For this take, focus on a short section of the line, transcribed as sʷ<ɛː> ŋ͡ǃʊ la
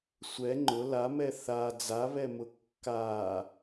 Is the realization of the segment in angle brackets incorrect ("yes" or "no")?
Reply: yes